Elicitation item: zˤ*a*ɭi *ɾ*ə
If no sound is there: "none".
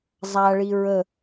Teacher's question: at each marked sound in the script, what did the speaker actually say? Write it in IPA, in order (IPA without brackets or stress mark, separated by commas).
a, ɹ